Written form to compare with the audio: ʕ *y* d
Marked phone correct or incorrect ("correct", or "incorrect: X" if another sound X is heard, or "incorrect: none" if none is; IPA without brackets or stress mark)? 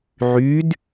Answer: correct